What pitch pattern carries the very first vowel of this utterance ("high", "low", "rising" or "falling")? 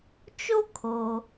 high